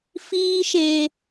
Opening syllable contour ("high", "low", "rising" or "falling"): high